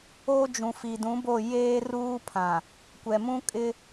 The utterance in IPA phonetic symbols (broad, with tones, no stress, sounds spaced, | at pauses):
o˦ d͡ʒ ũ˨ f i˨ d ũ˨˦ b o˦˨ j eː˦ r uː˦ pʰ ã˨ | kʷ ɛ˨ m ũ˦ kʼ ɪ˦